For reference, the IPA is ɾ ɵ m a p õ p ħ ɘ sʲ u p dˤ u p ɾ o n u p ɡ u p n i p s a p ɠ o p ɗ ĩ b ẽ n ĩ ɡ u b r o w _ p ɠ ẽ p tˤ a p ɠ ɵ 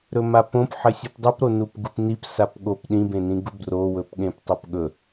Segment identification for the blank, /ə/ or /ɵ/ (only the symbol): ɵ